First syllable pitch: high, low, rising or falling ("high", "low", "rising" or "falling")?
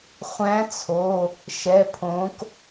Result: rising